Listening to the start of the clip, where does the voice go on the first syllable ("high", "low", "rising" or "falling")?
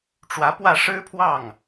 rising